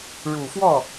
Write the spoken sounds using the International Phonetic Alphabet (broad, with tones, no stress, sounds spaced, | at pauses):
ɻ u˨˩ f w ɔ˥˩